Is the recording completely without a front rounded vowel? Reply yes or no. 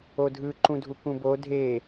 yes